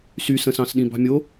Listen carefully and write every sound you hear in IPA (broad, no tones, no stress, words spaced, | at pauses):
sysə̃sɑ̃sɗĩ bɑ̤mʲo